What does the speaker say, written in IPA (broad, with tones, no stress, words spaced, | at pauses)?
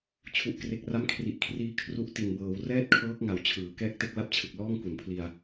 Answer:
t͡ɕʰu˨˩ʔ kre˨˩k̚ra˦˥mkʰri˨˩ʔkʰriː˧ kʰru˦˥ʔti˨˩nbɤː˩˦w rɛː˥˩t̚kʰɤː˦˥k̚ŋa˨˩w t͡ɕʰɯː˩˦ kɛː˦˥k̚te˦˥k̚la˦˥p̚t͡ɕʰɯ˨˩k̚ lɔː˥˩ŋku˨˩npʰli˧a̯